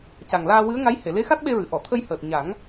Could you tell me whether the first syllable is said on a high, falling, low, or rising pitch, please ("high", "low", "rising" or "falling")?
low